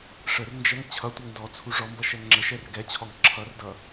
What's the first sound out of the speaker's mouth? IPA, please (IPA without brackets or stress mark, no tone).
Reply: ʂ